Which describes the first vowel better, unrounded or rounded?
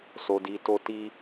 rounded